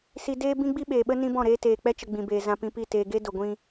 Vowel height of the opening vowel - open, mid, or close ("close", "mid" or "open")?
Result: close